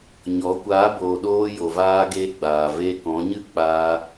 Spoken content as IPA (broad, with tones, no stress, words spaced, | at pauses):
ɲɔ˨˦ kʷaː˨˦boː˨ɗoː˧ jo˨vaː˧ɡeː˧ɡ͡baː˨ ve˧kɔ̃˨˦ɲɨ˦k͡paː˧